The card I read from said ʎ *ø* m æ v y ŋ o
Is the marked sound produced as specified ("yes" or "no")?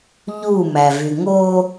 no